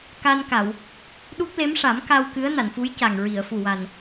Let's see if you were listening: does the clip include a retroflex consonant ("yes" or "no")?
yes